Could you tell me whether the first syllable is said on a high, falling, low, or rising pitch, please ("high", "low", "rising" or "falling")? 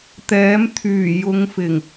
rising